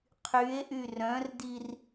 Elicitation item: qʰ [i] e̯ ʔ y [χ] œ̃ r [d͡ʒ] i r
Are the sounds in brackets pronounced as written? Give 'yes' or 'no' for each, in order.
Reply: no, no, no

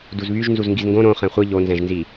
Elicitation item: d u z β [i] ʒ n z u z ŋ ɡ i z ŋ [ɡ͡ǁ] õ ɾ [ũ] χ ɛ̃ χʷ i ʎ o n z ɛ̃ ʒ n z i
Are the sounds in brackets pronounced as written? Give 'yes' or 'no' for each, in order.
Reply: no, no, no

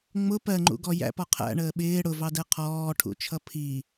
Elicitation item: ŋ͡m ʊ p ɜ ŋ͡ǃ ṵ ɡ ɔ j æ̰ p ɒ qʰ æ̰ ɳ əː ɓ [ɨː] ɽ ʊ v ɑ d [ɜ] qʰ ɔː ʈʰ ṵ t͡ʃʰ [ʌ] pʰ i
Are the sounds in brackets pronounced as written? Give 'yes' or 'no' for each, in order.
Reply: no, no, yes

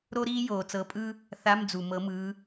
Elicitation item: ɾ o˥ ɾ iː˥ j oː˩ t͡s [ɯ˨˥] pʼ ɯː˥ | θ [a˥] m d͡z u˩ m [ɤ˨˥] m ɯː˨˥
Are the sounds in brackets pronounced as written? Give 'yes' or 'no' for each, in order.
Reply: no, no, yes

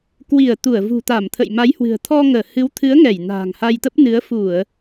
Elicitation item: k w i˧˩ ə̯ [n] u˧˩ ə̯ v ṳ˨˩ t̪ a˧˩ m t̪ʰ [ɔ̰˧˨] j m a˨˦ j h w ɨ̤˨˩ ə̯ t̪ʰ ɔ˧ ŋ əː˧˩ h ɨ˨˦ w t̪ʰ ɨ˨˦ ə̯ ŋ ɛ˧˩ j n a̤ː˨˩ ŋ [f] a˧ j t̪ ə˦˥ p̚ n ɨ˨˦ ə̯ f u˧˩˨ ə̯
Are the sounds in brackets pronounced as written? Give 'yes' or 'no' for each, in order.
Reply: no, no, no

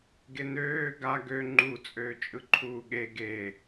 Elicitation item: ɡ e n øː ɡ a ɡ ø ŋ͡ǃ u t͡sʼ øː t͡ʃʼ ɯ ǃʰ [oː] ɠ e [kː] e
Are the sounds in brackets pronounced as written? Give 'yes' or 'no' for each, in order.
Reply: no, no

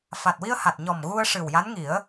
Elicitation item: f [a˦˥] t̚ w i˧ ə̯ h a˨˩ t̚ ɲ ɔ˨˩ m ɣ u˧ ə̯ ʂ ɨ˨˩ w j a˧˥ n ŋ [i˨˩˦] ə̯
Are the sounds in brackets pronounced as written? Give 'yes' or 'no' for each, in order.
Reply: no, yes

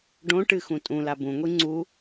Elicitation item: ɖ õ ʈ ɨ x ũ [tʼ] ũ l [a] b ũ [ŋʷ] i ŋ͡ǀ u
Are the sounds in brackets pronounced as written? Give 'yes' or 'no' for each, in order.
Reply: yes, yes, yes

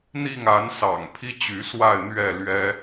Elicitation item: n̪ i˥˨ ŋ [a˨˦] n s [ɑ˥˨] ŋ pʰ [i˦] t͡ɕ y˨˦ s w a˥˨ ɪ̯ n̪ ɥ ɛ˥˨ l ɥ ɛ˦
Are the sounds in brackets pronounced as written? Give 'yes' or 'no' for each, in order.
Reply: yes, no, yes

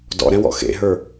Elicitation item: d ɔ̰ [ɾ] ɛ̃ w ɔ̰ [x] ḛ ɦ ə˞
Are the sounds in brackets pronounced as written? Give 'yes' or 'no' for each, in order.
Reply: yes, yes

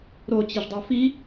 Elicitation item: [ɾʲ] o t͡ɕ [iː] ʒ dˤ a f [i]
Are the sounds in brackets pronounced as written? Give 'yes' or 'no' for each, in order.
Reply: no, no, yes

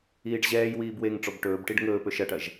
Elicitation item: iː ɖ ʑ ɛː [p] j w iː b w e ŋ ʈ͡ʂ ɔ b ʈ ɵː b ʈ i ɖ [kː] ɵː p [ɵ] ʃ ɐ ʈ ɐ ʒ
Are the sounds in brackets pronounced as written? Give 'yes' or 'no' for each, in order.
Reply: no, no, yes

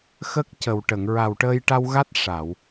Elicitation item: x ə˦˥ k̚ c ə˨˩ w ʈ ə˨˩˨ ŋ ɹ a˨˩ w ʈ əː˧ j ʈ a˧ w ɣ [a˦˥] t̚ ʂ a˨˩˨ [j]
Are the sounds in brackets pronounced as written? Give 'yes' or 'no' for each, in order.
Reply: yes, no

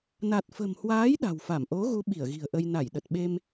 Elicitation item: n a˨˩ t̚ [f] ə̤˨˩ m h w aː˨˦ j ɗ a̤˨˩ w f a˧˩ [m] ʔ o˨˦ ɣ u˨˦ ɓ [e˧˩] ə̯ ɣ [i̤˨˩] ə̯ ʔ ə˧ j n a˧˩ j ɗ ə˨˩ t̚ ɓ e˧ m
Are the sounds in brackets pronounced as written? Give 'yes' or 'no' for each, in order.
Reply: yes, yes, no, yes

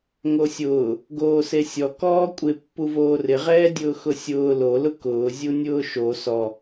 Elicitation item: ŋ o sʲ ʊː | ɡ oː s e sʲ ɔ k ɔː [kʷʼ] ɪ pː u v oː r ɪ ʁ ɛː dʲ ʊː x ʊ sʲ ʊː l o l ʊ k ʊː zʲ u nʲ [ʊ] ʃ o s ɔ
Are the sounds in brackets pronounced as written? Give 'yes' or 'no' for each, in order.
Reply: yes, no

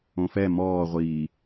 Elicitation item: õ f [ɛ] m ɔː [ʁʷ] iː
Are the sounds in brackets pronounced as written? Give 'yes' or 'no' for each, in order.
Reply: yes, yes

